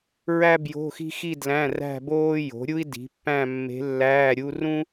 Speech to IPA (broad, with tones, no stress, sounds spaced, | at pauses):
ɹ æ˥ b j o̤˧˥˧ x i̤˥ x i˥˧ d l æ̃˧˥˧ r æ̤˥˧ b oː˥ j o̤˩˥ ɾʲ u˥ i̯ d i̤˩˥ pː æ̃˥˧ mː e̤˧˥ lː æː˧˥˧ ɾʲ u˥ r ũ˥